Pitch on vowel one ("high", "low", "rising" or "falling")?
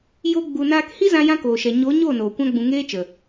high